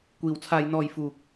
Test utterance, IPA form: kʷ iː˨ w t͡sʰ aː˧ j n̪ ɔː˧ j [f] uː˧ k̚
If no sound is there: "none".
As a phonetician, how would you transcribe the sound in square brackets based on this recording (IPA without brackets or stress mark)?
f